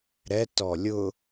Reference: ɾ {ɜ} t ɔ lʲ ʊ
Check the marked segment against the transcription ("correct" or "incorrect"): incorrect